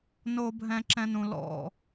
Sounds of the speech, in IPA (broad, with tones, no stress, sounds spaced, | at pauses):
n o˨ bʱ ɛ̃˨ ǁ ɛ̃˦ n ũ˨ l ɔ̰˦˨